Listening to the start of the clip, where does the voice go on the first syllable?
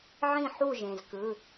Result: falling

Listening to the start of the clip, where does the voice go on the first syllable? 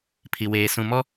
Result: low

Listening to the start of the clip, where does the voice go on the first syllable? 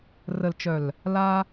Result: low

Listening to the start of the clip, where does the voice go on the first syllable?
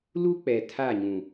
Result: high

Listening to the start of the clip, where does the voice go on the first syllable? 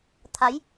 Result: rising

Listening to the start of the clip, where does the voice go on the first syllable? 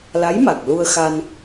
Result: rising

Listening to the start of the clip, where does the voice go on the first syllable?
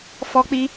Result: high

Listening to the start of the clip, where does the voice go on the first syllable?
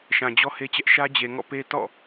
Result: low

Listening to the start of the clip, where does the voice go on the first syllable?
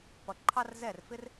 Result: low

